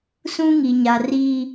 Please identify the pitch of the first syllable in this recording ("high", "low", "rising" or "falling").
high